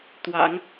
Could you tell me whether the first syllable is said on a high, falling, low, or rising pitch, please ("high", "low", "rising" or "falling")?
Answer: low